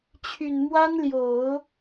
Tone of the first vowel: low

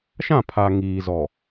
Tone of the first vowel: falling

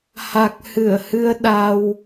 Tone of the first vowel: low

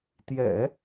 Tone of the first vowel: low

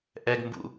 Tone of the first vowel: high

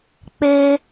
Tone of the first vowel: high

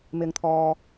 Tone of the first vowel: low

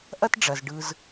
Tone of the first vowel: high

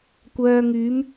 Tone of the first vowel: low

